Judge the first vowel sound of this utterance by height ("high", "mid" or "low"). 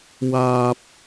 low